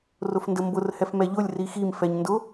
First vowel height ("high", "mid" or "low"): high